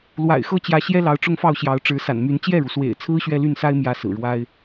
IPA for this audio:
l w a̰˨˩ ɪ̯ x ɤ˥ t͡ɕ j ä˧˥ ɕ j ɛ˥ l ɑ˧˥ ʊ̯ ʈ͡ʂ ʊ˥˧ ŋ f ɑ˥˩ ʊ̯ ɕ j ɑ˧˥ ʊ̯ ʈ͡ʂ ɻ̩˧˥ s a̰˨˩ n m y˧˥ n t͡ɕ j ɛ˥˩ ɻ u˩ s w ḛ˨˩ ɪ̯ t͡sʰ ɹ̩˥ ɕ ɥ ɛ˥˧ l y˥˩ n s a˥ ɪ̯ m j ä˥ s ɹ̩˨˩ ɻ w a˥ ɪ̯

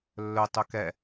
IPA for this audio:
lː ɵ tˤ ɵ k ɛ

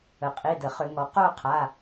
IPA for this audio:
ə˩ qʼ i˩˧˩ d ə˩ χ ʏ˧˩˧ ŋ ɔ˩˧ q o˥˧ qʰ a˩˧˩

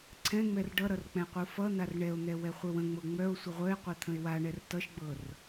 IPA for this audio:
ǀʰ ɛ̃ ŋ͡m ɛ r ɖ ʌ ɾ ʌ r k͡p ɛ̃ qʷ ɯ f ʌ n̪ a r ɳ ɛ o̯ n̪ ɛ w ɛ χʷ œ w ə̃ ŋ͡m ɤ ŋ͡m œ o̯ sʷ ə ʁʷ œ e̯ qʷ ɤ t̪ʰ ə̃ e̯ w a ɳ ɛ r t ʌ ʃ ɡ͡b ɤ r

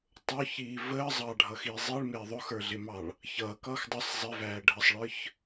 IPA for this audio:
tˤ ʊ ç iː v əː zˤ ɑ ɖʱ ʌ x i zˤ i ɭ m ɪː ðˤ ʊ x ə˞ ɮ ɪ m ɑ ɭ | ç ʌː k ʌː x dˤ ʌ sˤ zˤ ɪ v æː ɖʱ ə sˤ ɭ ə˞ ç

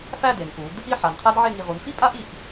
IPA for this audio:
f æ˥˧ d e˩˧ n ʔ u˩˧ d | i˥˧ ħ a˩˧ n qʰ æ˥ d ʕ e˥˧ ŋ i˧ ʁ u˩˧ n f i˥ pʼ a˥ ʔ i˧˩ ʔ

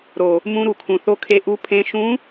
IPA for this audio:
ɾ o˨˩ | m ũ˧˥ ɾ u˨˩ kʰ ũ˨˩ θ o˧˥ kʰ e˧˥ ʔ u˧˥ pʰ ẽ˧˥ ʃ ũ˧˥

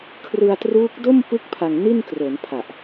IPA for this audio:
kʰ r ɯ˧ a̯ t r uː˦˥ k̚ d o˥˩ m p ɯ˦˥ k̚ pʰ a˧ ŋ n i˥˩ n k r o˩˦ n pʰ a˨˩ ʔ

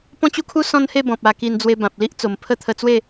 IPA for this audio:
p ɔ̃˦ t͡ɕ u˦ kʰ u˦ s ɔ̃˦ n h e˥˧ b ɔ̃˨ p̚ a˧ k i˧ n d͡z w e˧ b ã˨ p̚ l i˦ ʔ t͡s o˨˩ m pʰ ə˦ t̪ʰ ə˧ t͡s w e˥˧

